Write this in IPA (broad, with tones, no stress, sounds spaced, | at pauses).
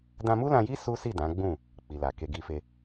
d ã˧ m u˦ l ã˧ j i˦ s u˦ s i˦˨ d ã˨˦ ɡ͡b ũ˦˨ | k͡p i˨ l a˨ k e˧ ɡ i˧ f e˧